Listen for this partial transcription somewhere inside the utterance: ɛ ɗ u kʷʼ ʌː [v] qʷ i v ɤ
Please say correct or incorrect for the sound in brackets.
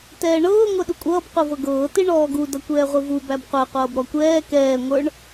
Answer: incorrect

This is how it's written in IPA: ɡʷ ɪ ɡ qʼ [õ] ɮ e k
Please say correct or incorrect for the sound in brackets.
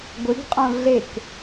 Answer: correct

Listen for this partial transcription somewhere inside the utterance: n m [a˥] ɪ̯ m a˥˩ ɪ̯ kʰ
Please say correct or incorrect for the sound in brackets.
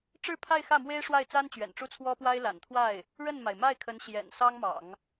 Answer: incorrect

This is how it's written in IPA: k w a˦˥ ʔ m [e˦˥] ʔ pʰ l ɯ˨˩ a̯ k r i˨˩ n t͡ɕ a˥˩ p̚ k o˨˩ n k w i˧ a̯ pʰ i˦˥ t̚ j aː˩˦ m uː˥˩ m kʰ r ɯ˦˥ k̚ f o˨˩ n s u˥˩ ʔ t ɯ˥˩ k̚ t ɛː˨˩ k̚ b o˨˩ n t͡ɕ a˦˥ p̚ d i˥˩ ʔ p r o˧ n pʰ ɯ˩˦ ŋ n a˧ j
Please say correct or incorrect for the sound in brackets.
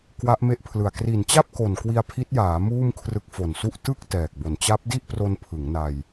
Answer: correct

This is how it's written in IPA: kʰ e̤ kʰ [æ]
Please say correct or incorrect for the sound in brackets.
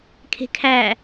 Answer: correct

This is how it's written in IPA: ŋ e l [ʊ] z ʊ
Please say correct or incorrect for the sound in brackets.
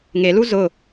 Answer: incorrect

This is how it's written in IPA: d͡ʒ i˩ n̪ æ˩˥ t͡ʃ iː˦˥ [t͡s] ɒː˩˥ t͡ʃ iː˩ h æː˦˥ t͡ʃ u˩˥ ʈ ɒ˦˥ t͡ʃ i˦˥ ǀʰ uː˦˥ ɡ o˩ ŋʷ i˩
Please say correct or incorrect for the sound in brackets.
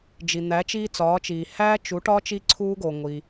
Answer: correct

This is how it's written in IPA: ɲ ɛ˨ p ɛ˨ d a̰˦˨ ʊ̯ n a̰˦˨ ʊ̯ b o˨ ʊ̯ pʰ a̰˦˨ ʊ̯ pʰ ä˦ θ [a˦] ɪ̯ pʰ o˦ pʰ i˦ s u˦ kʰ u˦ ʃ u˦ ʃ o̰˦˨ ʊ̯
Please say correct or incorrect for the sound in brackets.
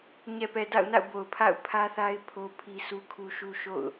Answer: correct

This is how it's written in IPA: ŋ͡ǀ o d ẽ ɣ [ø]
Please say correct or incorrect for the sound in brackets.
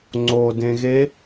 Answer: incorrect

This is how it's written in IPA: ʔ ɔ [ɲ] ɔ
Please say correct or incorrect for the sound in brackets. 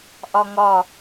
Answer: incorrect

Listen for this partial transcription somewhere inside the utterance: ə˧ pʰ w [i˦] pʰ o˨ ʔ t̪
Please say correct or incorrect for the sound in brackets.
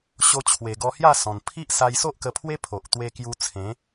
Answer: incorrect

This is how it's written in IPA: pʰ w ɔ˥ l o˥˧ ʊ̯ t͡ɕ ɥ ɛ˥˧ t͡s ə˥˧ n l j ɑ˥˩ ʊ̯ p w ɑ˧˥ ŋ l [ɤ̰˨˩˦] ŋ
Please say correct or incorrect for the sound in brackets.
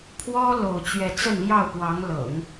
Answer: correct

